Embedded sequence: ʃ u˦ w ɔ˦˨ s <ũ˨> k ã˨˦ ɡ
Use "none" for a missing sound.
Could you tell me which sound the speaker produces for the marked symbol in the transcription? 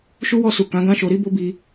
u˨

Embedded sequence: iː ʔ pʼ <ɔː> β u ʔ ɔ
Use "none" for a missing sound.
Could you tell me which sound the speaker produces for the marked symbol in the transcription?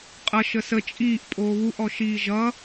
oː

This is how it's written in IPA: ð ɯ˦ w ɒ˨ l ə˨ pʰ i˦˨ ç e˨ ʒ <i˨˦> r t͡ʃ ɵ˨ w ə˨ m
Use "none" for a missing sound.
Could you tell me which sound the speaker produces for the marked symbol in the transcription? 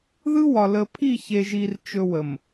i˨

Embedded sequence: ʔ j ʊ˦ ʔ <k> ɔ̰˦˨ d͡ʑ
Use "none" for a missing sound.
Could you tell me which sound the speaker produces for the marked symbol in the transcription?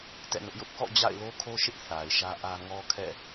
k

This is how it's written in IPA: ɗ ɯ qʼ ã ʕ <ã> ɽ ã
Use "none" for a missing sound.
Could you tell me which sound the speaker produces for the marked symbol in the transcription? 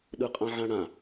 ã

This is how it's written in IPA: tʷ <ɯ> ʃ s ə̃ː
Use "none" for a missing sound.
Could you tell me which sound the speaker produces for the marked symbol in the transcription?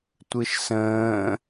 ɯ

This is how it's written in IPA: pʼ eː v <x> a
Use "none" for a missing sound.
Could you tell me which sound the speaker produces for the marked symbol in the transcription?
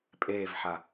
ħ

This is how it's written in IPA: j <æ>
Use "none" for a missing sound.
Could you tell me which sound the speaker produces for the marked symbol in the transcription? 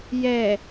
ɛ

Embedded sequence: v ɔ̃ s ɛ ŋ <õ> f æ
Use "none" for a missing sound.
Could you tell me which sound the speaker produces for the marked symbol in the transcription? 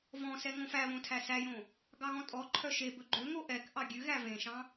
õ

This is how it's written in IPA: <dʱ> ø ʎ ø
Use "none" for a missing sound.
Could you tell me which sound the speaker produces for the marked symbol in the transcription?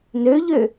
n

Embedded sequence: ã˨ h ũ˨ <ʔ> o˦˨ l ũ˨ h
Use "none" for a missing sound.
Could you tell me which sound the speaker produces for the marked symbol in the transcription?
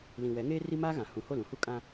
h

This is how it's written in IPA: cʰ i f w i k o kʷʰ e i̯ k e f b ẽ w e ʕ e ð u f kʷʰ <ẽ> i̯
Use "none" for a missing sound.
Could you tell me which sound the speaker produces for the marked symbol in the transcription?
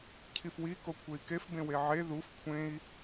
ẽ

